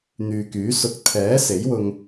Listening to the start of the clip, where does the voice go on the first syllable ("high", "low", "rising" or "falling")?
low